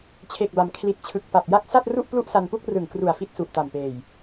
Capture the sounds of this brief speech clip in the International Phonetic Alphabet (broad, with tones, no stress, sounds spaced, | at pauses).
t͡ɕʰ e˨˩ k̚ b a˩˦ m kʰ l i˨˩ t̚ t͡ɕʰ ɯ˨˩ k̚ p a˨˩ p̚ j a˦˥ k̚ s a˥˩ t̚ r u˥˩ ʔ p l u˥˩ ʔ s a˧ n p u˥˩ k̚ r ɯ˨˩ ŋ k r u˨˩ a̯ f i˦˥ t̚ s u˨˩ ʔ t a˨˩ m p eː˨˩ j